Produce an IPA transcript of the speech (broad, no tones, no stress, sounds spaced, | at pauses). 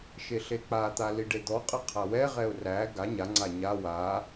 ʃ e ɬ e k͡p a t̪ a l i ɖ e d̪ ɔ qʼ ə qʰ a w ɛ ʁ ɛ ʊ̯ r æ ɡ a ɲ a ŋ͡ǀ a ɲ a w a